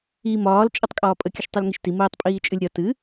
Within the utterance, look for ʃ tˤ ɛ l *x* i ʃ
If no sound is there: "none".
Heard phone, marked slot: ŋ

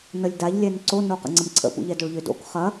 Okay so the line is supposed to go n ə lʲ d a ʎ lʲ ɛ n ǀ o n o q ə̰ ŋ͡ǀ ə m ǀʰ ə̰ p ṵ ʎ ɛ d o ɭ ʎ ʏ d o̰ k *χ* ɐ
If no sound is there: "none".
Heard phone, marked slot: χ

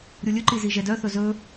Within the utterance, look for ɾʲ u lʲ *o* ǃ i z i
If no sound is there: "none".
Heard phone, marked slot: ɵ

